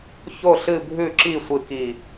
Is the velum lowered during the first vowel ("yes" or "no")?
no